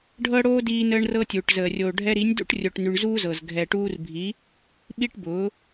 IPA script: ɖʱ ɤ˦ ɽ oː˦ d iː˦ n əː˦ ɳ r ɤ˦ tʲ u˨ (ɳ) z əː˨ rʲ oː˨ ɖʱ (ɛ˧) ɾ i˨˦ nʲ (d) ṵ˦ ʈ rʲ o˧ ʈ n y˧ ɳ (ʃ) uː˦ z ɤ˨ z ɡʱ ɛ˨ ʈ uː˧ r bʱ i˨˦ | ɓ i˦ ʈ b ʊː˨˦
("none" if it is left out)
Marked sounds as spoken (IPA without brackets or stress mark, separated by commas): ʈ, ɛ˧, d, z